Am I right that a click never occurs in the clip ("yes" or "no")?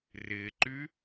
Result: no